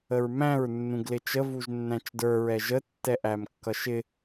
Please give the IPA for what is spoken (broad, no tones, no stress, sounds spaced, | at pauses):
ə ɹ m æ̃ ɹ nː ũ ɡ l ɪ t͡ʃ ə v u ʒ nː æ̃ t͡ʃ d ə˞ ɹ ɛ ʒ ə tː ɛ ʔ æ m kː ʌ ʃ ɪ